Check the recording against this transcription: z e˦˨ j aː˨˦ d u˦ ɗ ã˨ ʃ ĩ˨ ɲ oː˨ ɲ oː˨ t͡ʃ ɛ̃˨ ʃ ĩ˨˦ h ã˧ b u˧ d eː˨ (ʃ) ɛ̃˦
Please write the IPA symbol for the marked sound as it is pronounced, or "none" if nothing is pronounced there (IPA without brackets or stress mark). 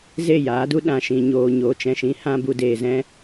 z